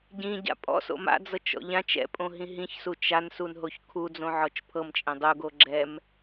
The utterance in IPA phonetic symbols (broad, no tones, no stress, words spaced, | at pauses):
ɟĩɟa̰ pʼɔ̰so̰ ma̰d͡zɤt͡ʃɔ̰ ʎãt͡ʃ ɛ̰pʼõɦĩ ɦĩçsut͡ʃ ansunɦoç kʰud͡zõʕɔt͡ʃ pʰɤmt͡ʃʼẽ dˤuɡo ɡ͡ǁɛm